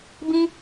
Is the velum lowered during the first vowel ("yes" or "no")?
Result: yes